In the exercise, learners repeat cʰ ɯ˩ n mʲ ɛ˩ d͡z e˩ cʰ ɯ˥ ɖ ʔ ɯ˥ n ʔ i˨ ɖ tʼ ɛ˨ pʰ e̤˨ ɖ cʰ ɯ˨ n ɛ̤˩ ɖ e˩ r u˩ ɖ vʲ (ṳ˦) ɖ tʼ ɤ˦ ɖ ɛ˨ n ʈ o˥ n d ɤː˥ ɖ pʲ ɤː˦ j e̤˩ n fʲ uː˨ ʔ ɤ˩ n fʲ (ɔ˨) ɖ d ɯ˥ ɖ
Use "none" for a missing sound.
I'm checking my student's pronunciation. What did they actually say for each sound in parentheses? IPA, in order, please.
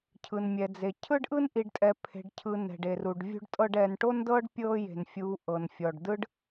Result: ṳ˦, ɔ˩

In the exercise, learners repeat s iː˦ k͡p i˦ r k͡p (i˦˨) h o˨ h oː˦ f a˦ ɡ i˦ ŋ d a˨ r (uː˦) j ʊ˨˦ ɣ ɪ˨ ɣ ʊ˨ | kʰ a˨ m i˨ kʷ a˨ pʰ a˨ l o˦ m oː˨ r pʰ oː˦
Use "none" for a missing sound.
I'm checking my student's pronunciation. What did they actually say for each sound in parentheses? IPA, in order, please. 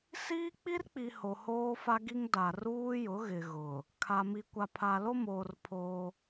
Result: i˨, uː˦

